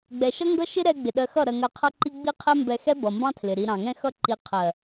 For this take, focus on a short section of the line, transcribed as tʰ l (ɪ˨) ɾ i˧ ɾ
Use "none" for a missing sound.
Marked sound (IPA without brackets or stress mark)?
ɪ˨